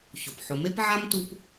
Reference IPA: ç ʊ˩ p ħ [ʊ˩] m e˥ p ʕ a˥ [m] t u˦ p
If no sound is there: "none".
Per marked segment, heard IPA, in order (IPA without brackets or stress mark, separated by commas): ʊ˨, m